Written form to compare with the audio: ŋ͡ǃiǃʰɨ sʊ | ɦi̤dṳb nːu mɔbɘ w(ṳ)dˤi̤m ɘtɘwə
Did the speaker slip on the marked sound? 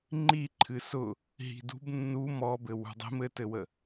no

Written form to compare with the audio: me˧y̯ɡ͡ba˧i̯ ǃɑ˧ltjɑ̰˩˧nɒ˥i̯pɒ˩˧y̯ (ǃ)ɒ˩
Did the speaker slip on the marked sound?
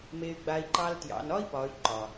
no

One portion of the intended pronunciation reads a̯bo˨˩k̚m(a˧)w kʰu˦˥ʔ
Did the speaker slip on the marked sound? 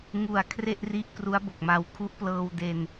no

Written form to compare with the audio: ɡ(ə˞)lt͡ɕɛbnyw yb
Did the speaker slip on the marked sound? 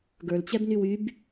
no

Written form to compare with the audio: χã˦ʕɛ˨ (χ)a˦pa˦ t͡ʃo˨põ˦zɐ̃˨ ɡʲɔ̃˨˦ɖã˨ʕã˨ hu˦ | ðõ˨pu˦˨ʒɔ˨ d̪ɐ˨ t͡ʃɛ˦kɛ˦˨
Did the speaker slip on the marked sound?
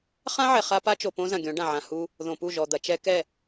no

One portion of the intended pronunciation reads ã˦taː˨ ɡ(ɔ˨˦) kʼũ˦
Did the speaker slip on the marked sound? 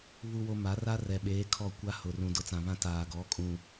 no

